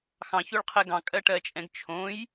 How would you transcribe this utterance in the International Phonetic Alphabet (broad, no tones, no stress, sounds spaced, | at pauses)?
x ɑ̃ ç o ɭ qʰ ɛ ɡ ɑ̃ kʼ ɜ ʈ ɜ t͡ʃʼ ɛ̃ ɡ t͡ʃʰ õ j